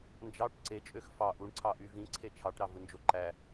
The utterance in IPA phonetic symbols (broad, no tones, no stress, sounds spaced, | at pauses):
n d͡ʒ ɑ ʈ ǀ e t͡ʃʼ ø x f ɑ ʔ u ɳ ǀʰ ɑ ʔ y v ĩ ǀʰ e t͡ʃʰ ɑ ʈ ɾ ɑ v ɯ n d͡ʒ o ǃ æ